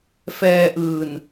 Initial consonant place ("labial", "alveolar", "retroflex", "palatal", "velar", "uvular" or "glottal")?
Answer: labial